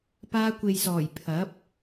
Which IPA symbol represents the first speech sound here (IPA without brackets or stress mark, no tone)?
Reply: p